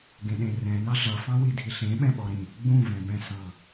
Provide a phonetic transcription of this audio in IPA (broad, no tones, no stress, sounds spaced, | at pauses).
ɡ ẽ ɗ ẽ r ɛ̃ n ɑ ɮ ʌ f ɑ̃ w i dʱ i ɬ ẽ ɓ ɛ̃ ɓ ɔ ɾ ĩ | ɡ͡b ũ v ɛ̃ b ɛ̃ s ɑ̃